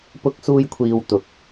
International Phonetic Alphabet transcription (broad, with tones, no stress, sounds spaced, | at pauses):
p ʊ˥ k̚ s uː˥ j kʷʰ iː˧ w t̪ ʊ˨˥ k̚